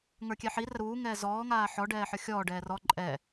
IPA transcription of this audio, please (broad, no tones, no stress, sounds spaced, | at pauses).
ŋ ə˞ kʲ ɛ ħ i r ə ɾ uː ŋ ɛː z ɔː ŋ aː ħ ɔ ɖ ɛː ħ ə˞ xʲ ɔː ɖ ɛː r ɔ ǃʼ ɛ